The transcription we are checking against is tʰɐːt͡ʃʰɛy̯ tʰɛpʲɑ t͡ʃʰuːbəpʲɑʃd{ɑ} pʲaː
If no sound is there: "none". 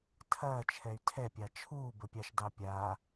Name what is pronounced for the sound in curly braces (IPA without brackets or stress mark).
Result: ɑ